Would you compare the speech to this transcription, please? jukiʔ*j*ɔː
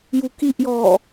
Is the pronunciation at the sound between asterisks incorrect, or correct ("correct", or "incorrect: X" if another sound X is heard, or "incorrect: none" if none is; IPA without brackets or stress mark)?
correct